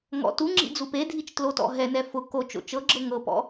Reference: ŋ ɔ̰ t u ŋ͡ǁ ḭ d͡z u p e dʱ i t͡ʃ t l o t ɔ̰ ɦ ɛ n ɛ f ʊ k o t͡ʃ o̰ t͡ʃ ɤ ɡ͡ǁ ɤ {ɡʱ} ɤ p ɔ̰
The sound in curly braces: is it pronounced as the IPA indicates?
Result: no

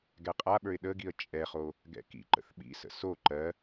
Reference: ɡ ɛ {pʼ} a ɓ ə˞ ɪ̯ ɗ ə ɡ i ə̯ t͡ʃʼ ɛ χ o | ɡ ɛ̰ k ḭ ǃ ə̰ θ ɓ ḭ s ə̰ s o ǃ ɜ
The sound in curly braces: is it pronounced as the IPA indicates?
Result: no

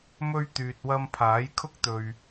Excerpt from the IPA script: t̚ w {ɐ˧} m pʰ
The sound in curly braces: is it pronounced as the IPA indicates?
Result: yes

